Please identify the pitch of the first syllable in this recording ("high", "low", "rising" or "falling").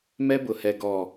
high